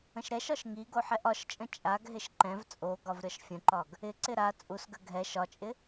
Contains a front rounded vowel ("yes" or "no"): no